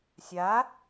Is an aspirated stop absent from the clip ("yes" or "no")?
yes